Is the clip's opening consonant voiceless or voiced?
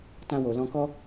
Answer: voiceless